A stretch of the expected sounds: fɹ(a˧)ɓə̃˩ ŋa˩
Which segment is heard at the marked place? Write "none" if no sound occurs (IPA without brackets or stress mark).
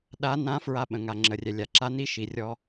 a˧